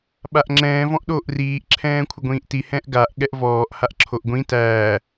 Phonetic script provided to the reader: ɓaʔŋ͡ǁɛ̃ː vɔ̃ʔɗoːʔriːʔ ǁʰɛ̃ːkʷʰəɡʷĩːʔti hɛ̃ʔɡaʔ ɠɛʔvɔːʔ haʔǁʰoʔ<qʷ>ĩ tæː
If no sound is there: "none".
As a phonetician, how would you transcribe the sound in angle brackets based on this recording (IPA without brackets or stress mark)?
ɡʷ